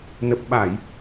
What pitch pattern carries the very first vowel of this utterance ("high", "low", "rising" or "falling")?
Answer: low